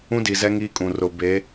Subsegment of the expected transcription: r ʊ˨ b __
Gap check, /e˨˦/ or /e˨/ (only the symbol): e˨˦